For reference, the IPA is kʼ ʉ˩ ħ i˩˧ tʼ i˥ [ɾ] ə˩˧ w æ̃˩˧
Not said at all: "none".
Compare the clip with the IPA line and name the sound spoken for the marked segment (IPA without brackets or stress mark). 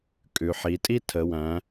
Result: tʰ